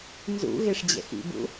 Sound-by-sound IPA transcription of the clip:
n z ṵ ɣ e ʂ d͡ʑ ɛ̰ x ḭ b ṵ

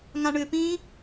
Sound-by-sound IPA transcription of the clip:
ŋ ã ɳ ʏː p ĩː

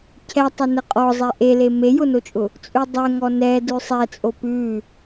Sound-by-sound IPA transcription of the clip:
cʰ ɛ tˤ ə n ə qʼ ɔ zˤ ɛ ʔ e l e m e j ʊ n o t͡ʃʼ ʊ | t͡sʼ ʉ dˤ ɛ ŋ ɔ n ɛ d ʉ sˤ ɛ t͡sʼ o p ʉ

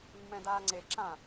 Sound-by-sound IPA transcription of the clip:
mː ɛ̃ d aː ŋ͡ǀ e ǁ ã

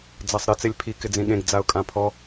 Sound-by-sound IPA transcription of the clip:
d͡z a sˤ ɾ ɪ t͡s e lʲ pʰ i k ɪ d͡z ĩ ɠ ẽ ɡ d͡z a ʊ̯ kʼ ã pʰ ɔ

